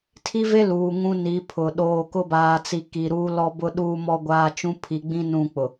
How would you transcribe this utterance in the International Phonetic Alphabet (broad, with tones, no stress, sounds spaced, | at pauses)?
tʰ i˦ v e˦ l uː˨ ŋ ũ˦ n i˨˦ pʰ ʊ˨ ɗ oː˨ k ʊ˦ b aː˨ t͡s i˨ k i˨ ɾ uː˦ l ɔ˦ b ʊ˦ ɗ uː˦ m ɔ˦ ɡʷ aː˦ t͡ʃ ũ˦ pʰ i˨ ɡ͡b ĩ˦ n ũ˦˨ k͡p ʊ˨